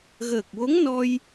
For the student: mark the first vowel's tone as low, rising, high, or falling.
low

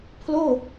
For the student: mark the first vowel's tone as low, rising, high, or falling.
falling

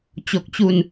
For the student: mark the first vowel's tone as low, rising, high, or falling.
low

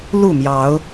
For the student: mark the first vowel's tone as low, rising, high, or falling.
falling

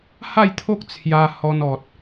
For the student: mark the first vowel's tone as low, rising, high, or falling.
falling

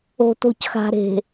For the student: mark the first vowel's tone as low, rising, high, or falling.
low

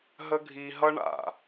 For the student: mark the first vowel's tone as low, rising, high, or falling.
high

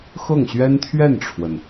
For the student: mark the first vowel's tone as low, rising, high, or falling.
falling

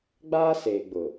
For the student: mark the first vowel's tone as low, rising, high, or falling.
high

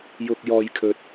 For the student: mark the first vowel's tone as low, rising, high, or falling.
low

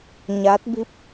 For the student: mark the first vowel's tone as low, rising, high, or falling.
rising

